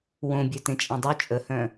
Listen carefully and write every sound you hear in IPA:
w õ bʲ œ t ẽ t͡ʃʼ ẽ dˤ u t͡ʃʼ ə h œ̃

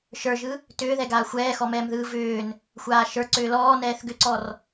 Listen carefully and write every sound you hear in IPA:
ʃ ə˞ ʒ ɯ | t ʏː ð ɛ ɡ aː xʷ ɛː x ɔ m ɛː m ð ɯː v ʏː n | xʷ aː ʃ ə˞ ǀ ʏː l ɔː n ɛː θ ɡ ʏ ǀ ɔ r

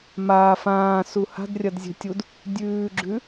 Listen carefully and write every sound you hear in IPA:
m aː f ãː s u h a̤ d rʲ ɐ d zʲ e̤ tʲ u d | dʲ ʉː ɡ͡ǁ ʉ

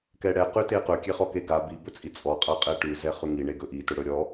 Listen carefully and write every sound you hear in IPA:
k ɛ ɽ ɛ q ʉ t e q ɵ kʲ e χ ɔ k e ɡ a b i b ɵ t͡sʼ i t͡sʼ ɔ qʼ a qʼ ɛ ʈ ʉ z ɛ χ ʉ ŋ i ɳ e ɡ ɵ ʔ i t ɵ ɽ ɵ ɾʲ ɔ

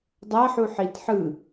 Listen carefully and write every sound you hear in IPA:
dˤ a ħ u ħ i t ħ ɯ

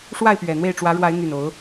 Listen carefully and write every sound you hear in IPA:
ʂ w a˥˨ ɪ̯ p ɥ ɛ˨˩ n̪ w e˥˨ ɪ̯ ʈ͡ʂ w ä˨˦ ɻ w a˨˦ ɪ̯ n̪ y˨˩ n o˨˦ ʊ̯

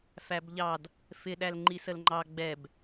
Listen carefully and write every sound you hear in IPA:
f æ b ʎ ɑ d | f ɪ ɗ æ l ŋ͡ǃ i s ə l ŋ͡ǃ ɑ ɡ͡b ɛ b

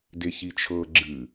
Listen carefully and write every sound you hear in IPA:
d e ç i t͡ʃʰ ɤ ɡ͡ǁ ɨ

